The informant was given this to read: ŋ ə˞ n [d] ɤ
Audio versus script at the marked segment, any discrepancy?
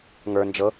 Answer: yes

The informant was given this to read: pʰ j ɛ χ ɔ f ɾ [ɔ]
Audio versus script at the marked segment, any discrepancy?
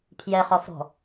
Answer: yes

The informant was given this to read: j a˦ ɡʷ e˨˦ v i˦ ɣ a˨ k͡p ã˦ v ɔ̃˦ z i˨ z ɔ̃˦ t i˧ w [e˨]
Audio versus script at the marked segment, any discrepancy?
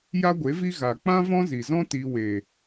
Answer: no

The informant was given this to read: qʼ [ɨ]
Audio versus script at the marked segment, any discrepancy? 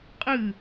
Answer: no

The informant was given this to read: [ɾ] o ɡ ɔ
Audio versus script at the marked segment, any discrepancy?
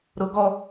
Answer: no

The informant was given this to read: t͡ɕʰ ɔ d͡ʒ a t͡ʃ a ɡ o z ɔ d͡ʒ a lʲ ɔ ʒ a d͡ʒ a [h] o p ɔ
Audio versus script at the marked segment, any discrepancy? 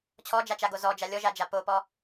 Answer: yes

